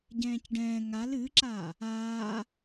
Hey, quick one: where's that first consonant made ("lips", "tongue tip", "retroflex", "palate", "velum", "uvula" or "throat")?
palate